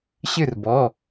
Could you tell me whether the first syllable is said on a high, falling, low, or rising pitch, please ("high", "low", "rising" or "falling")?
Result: falling